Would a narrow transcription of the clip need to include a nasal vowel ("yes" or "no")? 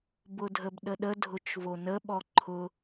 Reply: no